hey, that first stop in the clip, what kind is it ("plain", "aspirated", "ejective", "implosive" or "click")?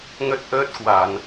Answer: plain